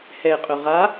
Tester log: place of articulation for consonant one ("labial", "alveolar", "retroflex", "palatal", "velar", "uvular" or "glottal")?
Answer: glottal